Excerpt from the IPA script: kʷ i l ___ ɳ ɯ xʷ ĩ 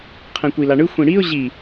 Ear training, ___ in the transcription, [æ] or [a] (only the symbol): a